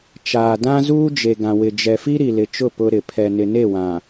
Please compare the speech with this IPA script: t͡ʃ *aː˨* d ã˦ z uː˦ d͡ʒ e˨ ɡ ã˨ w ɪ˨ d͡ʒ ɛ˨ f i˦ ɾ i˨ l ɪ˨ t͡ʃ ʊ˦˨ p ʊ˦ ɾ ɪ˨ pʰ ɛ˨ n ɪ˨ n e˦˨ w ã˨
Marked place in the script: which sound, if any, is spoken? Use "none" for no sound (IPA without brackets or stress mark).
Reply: aː˨